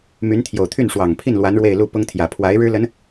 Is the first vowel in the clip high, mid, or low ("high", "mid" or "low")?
high